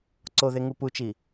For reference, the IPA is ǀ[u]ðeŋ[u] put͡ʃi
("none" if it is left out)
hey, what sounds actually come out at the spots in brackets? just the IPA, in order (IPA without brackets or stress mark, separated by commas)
o, u